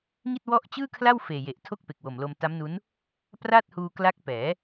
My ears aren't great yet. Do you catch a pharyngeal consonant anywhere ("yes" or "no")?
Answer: no